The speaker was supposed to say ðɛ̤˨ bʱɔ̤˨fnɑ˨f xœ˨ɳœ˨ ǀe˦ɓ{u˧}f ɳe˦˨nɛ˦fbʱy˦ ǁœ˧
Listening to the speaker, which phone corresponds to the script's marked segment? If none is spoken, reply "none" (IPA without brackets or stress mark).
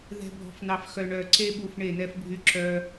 u˧